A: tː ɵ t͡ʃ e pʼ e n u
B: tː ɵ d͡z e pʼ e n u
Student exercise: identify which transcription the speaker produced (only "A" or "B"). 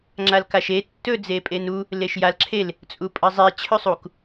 B